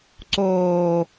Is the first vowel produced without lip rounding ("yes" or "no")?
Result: no